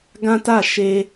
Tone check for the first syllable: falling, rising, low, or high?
high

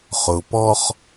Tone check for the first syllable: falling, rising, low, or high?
low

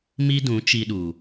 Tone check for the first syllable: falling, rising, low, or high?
high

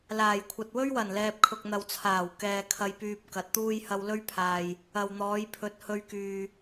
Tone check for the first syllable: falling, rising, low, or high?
low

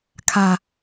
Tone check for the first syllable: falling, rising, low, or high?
low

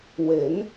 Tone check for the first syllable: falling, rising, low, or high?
rising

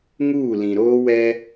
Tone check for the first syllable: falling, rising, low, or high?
falling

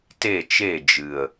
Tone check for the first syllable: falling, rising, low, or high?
falling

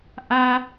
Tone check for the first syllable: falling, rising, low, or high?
high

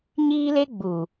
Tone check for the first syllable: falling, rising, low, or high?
high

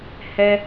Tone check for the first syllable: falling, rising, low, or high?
high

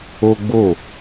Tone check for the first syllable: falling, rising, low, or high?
high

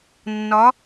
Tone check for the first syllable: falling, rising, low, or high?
rising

